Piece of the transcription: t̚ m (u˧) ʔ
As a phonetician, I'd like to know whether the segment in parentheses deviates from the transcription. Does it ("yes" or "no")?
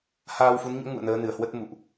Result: yes